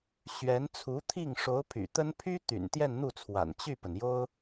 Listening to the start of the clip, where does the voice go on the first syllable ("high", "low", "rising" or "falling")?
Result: rising